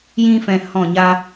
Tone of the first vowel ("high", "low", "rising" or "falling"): high